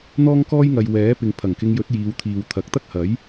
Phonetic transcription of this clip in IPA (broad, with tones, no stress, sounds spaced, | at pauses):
n̪ ɔː˥ ŋ k ɔː˥ j ŋ ɐ˨ j w ɛː˨˥ p ɪ˨ ŋ pʰ ɐ˨˩ ŋ k ɪ˧ ŋ j ɵ˨˥ t̚ j iː˨˧ w t̪ʰ iː˨ w t̪ʰ ɐ˨ k̚ t̪ ɐ˥ k̚ h ɐ˨˥ j